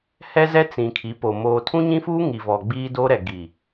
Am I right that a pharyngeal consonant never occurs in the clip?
yes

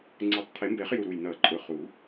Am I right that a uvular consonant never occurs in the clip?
no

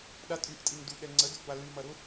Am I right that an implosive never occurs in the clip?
no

